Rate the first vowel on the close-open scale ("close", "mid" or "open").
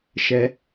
mid